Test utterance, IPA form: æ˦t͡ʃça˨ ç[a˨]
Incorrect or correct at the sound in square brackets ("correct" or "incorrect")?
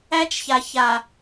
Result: correct